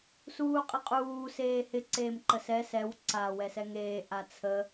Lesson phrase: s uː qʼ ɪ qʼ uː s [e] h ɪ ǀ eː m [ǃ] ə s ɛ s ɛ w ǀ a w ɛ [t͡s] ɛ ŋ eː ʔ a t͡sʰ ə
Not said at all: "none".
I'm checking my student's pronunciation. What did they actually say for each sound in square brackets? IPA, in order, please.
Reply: eː, ǃ, s

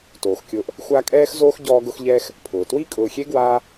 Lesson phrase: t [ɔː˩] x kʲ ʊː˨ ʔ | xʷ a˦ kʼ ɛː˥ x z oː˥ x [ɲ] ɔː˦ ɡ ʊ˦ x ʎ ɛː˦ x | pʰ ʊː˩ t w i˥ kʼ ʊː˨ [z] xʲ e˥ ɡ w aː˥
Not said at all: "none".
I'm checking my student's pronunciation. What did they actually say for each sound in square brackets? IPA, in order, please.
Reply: oː˩, ɟ, none

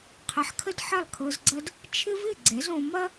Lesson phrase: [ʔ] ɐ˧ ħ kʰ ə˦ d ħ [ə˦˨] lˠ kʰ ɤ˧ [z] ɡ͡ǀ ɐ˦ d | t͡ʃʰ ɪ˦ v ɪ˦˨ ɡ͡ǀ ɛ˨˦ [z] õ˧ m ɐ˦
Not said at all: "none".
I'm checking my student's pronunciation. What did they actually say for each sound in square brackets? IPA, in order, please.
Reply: qʰ, ɐ˦˨, z, z

